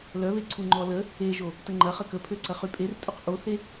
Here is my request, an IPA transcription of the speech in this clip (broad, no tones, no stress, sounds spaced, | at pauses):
l œ β e ǀʰ u ŋ͡ǃ ɔ l ə | e ʒ o | t ə ŋ͡ǃ ɐ χ ə k ə pʰ ø ǀ ɐ χ y pʼ e r tʼ u q ʔ o θ e